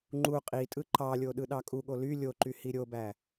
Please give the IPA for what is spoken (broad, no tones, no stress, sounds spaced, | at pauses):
ŋ͡ǃ u qʼ i tʼ ɯ ǃ ɑ lʲ o ɗ ɯ ɗ ɑ kʼ u ɠ o l y lʲ o ǃ y h i ɾʲ o b æ